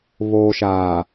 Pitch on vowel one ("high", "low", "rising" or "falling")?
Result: low